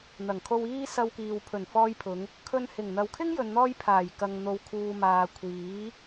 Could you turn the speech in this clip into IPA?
n̪ ɐ˨˩ ŋ kʰ o˧ w iː˥ s ɐ˧ w k iː˨ w pʰ ɵ˨˩ n f ɔː˧ j pʰ ʊ˨˧ ŋ | kʰ ɵ˧ n h ɪ˨˩ ŋ n̪ ɐ˨ w kʰ ɪ˥ ŋ j ɵ˨ n n̪ ɔː˧ j pʰ aː˨˩ j k ɐ˨ ŋ n̪ o˨ w kʰ uː˨ m aː˨ kʷʰ iː˨˥

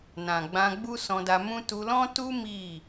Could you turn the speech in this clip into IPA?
n ã˨ ɡ͡b ã˧ ɡ͡b u˦ s ɔ̃˧ d a˧ m ũ˦ t u˧ l ɔ̃˦ t u˦ m i˦˨

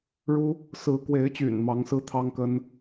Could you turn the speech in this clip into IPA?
ɻ u˦ | s ɹ̩˨˦ k w e˨˦ ɪ̯ t͡ɕ y̰˨˩ n m ɑ˨˦ ŋ s ɹ̩˦ t̪ʰ ɑ˦ ŋ k ə˦ n

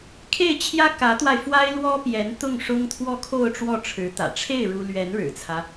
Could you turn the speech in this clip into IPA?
kʰ e˥˩ ɪ̯ t͡ɕʰ j ä˥ k ä˧˥ t̪ w a˧ ɪ̯ f w a˥ ɪ̯ l w ɔ˥ p j ɛ˧˥ n t̪ ʊ˥˩ ŋ ʂ ʊ˥ ŋ t̪ʰ w ɔ˥˧ kʰ o˥˧ ʊ̯ ʈ͡ʂ w ɔ˥˩ ʈ͡ʂʰ ɻ̩˧˥ t̪ ä̰˨˩ ʈ͡ʂʰ e˥˩ ɪ̯ ɻ u˥ l ɥ ɛ˧˥ n ɻ ɻ̩˨˩ t͡sʰ ä˦

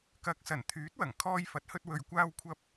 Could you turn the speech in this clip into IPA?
k ɐ˨˥ k̚ s ɐ˨˩ n t̪ʰ yː˨˥ t̚ w ɐ˨˩ ŋ kʰ ɔː˧ j f ɐ˨˥ t̚ h ɵ˧ t̚ w ɵ˨ ɥ kʷ aː˧ w kʷʰ ɐ˧ p̚

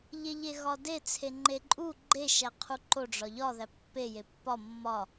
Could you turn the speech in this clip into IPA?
ʎ e ʎ e ɣ ɒ d e t͡sʰ e ŋ͡ǃ e ǃʼ u ɡ͡ǃ e ʃ æ qʰ u ǃ o ɖ͡ʐ ɒ ʎ ɒ ð æ pː e j e pː ɒ mː ɒ

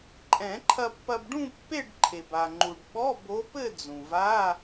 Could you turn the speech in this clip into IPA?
ǃʼ ɛ̃˨˩˦ ǃʰ ɐ˧ pː ɐ˧ b ɖ ũ˥˧ pː e˥˧ ɖ ǃʰ e˩ b a˩ ŋ͡ǃ u˩ ɖ ɓ ɔ˧˥˧ b o˧˥ p ɘ˥˧ d͡z ũ˩ v a˧˥˧

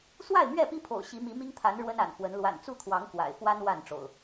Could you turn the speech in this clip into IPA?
s w a˥˨ ɪ̯ m ɥ ɛ˥˨ p i˦ pʰ o̰˨˩ ʊ̯ ɕ i˨˦ m i˨˦ m i˦ ŋ t̪ʰ a˨˦ n ɻ w ə˦ n a̰˨˩ n f w ə˨˦ n l w a̰˨˩ n t͡s u˥˨ t̪ʰ w ɑ˨˦ ŋ k w a̰˨˩ ɪ̯ f w a˦ n w a˥˨ n ʈ͡ʂ o̰˨˩ ʊ̯

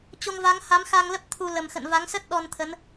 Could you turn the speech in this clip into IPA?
t͡ɕ o˧ ŋ v a˨˦ ŋ h a˨˦ m x a˧ ŋ l ə˦˥ p̚ t̪ʰ u˧ l ə˨˩ m x ə̰˧˨ n v a˨˦ ŋ s ə˦˥ t̚ ɗ ɔ˧ n t̪ʰ ə˨˦ n

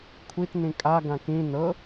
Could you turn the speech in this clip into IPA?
kʷʰ i t n ĩ kʼ a ɡ ã k ĩ n ɤ

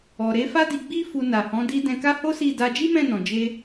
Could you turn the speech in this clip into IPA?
ɔ˨ ɾ e˨˦ f a˦ d i˧ ɡ͡b i˦ f u˧ n a˨ h ɔ̃˨˦ d i˧ d ɛ̃˧ k a˦ h o˦ s i˦˨ d a˧ d͡ʒ i˦ m ɛ̃˦˨ n ɔ̃˨ d͡ʒ e˧

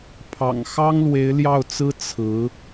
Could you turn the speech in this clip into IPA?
pʰ ɑ̰˨˩ ŋ x ɑ˥ ŋ l w e˧˥ ɪ̯ l j ɑ˥˩ ʊ̯ t͡s ɹ̩˥ t͡sʰ ɹ̩˧˥

